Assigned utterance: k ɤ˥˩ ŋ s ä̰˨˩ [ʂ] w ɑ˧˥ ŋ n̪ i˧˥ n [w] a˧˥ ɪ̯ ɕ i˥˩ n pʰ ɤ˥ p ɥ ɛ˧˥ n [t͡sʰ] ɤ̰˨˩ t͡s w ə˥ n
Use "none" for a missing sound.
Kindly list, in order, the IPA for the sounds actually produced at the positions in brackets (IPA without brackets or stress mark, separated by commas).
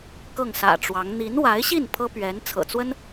ʈ͡ʂ, w, t͡sʰ